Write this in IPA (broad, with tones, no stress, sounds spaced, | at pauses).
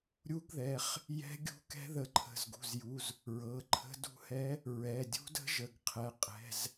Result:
ɾʲ u˧˥ ɡ ð ɛ˩˧˩ χ | j ɛ̤˧˥ ɡʲ ṳ˧˥ k ɛ̤˧˥ ð ə˩˧˩ ǃʰ ə̤˩˧˩ z ɡ ṳ˩˧˩ z j u˩˧˩ z | ɹ ɤ˩˧˩ ǃʰ ə̤˧˥ d ṳ˧˥ h ɛ˧˥ | ɹ ɛ˩˧˩ dʲ ṳ˧˥ d ə̤˧˥ ʒ ə˩˧˩ ɡ qʰ ɛ˩˧˩ qʼ ɛ̤˩˧˩ z